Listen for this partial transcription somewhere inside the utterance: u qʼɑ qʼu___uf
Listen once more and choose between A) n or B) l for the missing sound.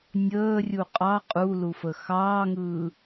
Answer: B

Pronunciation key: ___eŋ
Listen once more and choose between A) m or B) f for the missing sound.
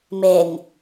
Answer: A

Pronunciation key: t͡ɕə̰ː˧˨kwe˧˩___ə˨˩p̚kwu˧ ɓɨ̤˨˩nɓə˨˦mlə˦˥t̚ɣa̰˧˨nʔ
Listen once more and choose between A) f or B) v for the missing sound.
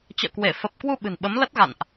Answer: A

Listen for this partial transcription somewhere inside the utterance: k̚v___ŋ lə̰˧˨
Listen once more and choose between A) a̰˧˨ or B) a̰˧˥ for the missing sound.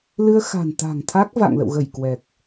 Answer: A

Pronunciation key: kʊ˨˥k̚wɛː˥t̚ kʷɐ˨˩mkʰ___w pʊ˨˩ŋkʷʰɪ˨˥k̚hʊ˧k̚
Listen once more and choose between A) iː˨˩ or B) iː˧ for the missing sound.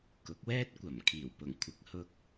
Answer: A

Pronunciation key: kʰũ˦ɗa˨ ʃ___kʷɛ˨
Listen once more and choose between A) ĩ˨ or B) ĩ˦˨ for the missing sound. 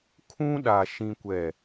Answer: A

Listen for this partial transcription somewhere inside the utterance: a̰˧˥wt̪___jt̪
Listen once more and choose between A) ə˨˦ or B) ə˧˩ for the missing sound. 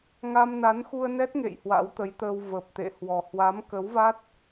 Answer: A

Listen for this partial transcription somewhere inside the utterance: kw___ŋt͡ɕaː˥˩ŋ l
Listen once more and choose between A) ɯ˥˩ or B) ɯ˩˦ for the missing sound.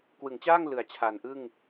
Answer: B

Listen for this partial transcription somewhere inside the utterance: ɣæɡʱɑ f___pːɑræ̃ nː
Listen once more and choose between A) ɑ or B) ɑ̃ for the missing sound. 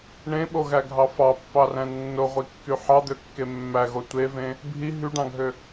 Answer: A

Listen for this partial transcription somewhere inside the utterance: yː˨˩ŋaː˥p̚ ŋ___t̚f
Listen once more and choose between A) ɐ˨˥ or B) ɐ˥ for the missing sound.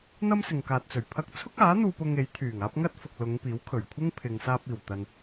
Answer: B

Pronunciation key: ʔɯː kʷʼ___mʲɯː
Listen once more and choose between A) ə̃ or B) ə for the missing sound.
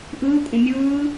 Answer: A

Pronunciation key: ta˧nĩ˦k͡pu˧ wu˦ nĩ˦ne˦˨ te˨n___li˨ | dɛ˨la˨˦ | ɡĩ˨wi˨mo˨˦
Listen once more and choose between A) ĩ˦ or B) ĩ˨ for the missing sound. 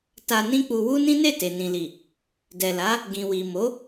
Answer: B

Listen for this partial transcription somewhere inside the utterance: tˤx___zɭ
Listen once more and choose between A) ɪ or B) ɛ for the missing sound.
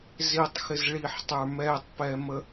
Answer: A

